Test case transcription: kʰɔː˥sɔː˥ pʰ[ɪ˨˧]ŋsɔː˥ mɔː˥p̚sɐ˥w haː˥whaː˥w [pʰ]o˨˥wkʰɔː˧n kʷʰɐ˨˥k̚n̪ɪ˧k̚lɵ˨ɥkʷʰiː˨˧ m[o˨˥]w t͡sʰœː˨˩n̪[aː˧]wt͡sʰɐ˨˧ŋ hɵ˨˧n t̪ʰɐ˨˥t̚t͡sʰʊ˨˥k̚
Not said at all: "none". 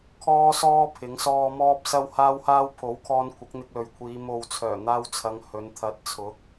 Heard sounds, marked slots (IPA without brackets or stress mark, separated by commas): ɪ˨˥, pʰ, o˨, aː˧